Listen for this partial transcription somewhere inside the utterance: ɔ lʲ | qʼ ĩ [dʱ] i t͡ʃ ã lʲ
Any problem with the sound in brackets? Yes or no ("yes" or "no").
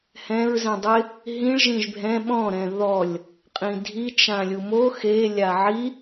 no